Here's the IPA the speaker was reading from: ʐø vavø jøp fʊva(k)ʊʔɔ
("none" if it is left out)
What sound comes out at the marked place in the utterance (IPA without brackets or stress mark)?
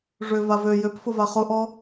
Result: χ